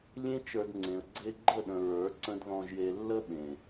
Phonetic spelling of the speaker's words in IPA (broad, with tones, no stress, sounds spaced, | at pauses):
lʲ ẽ˦ t͡ʃ ə˞˧ d ŋ͡ǀ ẽ˨ ə̯ ɡ͡ǀ e˧ ɡ͡ǃ ə˦˨ ɗ ə̃˨ ɹ ə˞˨˦ ǀ ə̃˦ d ð ɔ̃˧ ʒ j e˧ lː ə˦ ɓ ẽ˨